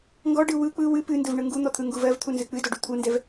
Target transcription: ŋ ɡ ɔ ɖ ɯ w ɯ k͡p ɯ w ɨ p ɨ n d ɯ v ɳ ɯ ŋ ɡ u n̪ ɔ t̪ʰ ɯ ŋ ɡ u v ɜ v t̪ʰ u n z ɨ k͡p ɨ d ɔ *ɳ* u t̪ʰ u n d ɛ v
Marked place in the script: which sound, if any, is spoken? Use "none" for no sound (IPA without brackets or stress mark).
ɖ